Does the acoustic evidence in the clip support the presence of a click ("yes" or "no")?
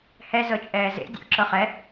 yes